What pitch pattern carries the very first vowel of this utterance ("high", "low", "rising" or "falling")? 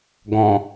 low